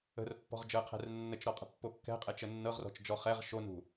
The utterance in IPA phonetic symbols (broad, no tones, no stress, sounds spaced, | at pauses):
ə̤ r pː ɔ̤ ʁ d͡ʒ əː qʰ ɛ̤ r nː ə t͡ʃ ɾ ɔ qʼ ə̤ pː o kː ɛ̤ qʼ ɛ t͡ʃ ə nː ɤ ʁ r ɔ̤ t͡ʃ d͡ʒ ɔ χ ɛ ʁ ʃ o n ṳ